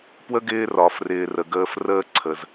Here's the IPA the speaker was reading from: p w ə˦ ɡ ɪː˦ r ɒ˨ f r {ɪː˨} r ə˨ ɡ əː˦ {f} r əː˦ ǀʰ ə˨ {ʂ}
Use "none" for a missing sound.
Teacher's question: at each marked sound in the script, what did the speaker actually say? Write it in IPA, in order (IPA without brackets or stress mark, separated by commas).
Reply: ɪː˨, f, z